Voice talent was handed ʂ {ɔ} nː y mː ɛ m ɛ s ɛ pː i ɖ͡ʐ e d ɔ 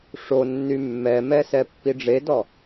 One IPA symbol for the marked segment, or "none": o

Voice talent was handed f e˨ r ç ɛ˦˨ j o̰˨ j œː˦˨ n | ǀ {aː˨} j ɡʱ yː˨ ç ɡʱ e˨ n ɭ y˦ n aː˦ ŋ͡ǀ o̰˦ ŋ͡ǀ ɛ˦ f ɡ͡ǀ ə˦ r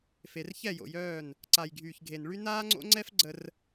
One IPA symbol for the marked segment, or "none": a˨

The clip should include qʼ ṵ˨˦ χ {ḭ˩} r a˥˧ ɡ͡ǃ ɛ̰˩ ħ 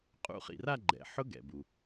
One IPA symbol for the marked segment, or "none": ḭ˩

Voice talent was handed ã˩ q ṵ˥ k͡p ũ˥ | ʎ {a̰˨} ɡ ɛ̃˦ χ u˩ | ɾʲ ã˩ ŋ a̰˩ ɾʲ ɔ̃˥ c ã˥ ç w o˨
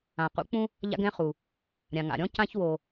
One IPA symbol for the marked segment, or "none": a̰˦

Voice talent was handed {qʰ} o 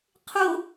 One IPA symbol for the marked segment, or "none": qʰ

